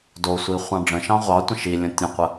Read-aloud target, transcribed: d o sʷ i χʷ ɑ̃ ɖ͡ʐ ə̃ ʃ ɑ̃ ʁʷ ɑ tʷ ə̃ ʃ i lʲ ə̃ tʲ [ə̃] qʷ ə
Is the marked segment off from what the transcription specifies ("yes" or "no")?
no